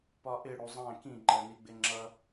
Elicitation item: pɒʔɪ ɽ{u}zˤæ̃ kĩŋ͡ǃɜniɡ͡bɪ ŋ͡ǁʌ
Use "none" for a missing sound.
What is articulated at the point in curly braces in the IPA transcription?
u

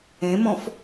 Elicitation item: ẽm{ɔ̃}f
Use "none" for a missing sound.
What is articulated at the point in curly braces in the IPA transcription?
ɔ̃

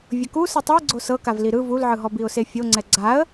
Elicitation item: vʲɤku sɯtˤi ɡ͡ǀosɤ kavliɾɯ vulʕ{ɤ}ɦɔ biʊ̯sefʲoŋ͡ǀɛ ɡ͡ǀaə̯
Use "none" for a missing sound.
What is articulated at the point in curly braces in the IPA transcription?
ɯ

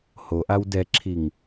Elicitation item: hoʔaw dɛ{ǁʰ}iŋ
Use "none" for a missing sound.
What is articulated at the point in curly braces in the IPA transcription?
ǁʰ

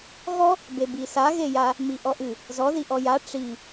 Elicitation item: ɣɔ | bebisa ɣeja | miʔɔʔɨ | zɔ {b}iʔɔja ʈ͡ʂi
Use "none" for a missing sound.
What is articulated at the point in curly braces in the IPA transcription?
ð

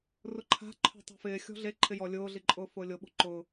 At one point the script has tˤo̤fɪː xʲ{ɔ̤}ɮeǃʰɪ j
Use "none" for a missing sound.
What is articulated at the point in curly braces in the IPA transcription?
ɔ̤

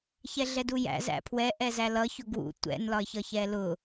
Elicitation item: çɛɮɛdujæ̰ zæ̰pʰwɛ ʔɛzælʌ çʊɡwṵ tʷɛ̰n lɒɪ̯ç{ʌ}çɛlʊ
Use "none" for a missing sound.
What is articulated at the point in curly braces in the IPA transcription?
ʌ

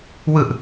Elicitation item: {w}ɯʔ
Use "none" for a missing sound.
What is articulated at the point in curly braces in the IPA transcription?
w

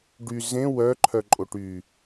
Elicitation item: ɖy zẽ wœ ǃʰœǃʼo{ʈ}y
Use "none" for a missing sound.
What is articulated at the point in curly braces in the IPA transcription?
ʈ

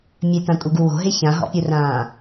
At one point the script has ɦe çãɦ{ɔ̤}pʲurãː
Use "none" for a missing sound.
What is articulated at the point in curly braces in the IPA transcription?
ɔ̰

